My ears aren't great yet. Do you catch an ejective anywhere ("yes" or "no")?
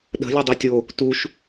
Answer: no